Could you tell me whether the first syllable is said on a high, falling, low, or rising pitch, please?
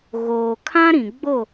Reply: low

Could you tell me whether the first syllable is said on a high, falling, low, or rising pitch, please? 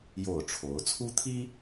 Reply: falling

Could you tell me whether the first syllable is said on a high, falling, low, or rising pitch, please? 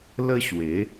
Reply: high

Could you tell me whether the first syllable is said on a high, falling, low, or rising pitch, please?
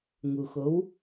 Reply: low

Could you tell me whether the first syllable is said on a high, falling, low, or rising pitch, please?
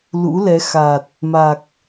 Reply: rising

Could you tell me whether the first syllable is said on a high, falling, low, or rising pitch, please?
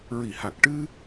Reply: low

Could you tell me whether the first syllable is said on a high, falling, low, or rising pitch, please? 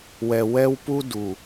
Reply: low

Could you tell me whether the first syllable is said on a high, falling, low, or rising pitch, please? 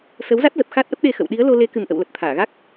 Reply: rising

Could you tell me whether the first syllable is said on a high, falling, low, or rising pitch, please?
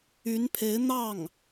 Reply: rising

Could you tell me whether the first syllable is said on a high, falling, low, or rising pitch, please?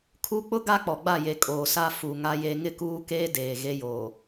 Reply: high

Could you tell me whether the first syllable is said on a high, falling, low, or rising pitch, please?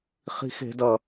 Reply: high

